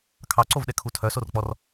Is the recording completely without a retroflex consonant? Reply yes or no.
yes